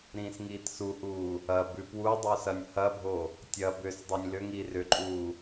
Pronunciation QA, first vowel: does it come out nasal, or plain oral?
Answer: nasal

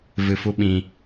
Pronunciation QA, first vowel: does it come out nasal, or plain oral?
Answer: oral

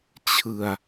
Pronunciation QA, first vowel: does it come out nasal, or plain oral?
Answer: oral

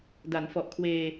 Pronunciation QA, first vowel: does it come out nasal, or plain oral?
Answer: oral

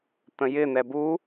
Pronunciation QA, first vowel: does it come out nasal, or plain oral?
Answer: nasal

